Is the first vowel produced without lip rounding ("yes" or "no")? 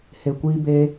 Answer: yes